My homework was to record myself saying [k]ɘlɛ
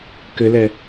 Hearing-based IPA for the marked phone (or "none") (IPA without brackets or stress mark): k